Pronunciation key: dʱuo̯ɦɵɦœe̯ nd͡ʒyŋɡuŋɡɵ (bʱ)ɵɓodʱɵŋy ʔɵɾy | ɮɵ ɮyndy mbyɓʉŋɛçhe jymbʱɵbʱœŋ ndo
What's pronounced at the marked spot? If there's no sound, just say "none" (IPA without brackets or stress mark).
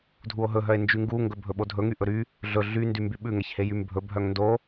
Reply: bʱ